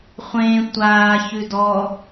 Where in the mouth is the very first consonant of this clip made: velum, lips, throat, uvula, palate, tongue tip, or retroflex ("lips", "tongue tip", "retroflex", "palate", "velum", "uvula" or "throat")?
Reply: uvula